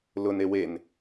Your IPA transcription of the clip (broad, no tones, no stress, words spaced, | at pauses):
lʊne wen